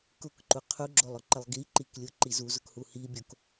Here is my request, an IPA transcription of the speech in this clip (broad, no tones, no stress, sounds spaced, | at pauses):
k ʊ k ǃ u qʰ u ɡ͡ǁ o lˠ ʊ ǃ ə lˠ ɡ i ǃ i k lʲ ʊ ǃ i z u z ʊ k h u h i bʲ o k